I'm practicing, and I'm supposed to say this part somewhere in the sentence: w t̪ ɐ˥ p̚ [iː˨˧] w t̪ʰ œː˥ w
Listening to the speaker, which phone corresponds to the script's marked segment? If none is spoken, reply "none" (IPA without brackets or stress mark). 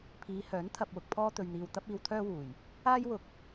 iː˧